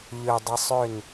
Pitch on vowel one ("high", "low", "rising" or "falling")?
low